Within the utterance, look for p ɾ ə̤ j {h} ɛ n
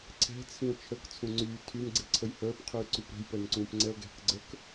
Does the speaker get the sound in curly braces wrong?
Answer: yes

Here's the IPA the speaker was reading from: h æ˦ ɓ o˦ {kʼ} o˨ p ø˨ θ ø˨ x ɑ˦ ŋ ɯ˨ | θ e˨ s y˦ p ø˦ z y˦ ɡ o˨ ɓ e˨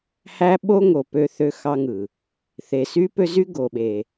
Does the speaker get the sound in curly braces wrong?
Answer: yes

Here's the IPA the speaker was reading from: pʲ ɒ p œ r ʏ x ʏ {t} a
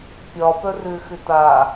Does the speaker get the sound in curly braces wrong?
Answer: no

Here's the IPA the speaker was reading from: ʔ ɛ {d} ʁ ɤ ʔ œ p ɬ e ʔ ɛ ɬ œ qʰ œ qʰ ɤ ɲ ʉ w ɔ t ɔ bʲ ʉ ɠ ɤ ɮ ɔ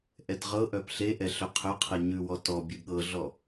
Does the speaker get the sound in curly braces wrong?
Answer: no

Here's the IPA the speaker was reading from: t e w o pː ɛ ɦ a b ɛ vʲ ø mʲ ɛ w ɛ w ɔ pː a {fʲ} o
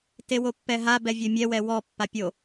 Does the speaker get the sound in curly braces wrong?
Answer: yes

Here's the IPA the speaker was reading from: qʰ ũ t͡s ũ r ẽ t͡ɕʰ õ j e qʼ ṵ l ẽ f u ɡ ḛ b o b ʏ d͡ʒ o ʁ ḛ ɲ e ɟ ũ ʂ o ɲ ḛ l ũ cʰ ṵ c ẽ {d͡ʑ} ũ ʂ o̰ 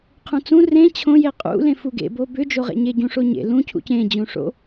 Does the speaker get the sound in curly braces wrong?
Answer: no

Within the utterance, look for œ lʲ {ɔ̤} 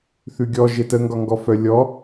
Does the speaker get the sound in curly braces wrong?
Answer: yes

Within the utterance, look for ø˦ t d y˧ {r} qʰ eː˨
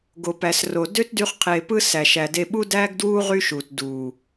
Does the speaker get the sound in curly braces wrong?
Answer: yes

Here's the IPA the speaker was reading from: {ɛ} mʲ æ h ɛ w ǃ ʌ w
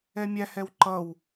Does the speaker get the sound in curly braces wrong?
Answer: no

